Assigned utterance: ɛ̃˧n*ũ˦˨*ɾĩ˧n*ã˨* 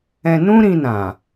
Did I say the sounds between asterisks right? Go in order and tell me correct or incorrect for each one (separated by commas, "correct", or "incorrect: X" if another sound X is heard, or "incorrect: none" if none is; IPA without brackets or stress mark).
incorrect: ũ˦, correct